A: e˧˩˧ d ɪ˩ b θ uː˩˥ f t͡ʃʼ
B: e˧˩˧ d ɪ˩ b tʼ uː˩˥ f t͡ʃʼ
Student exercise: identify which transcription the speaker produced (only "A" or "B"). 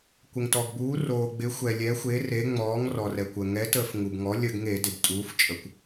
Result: B